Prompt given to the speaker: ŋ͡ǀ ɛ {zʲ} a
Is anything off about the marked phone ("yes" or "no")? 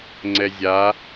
no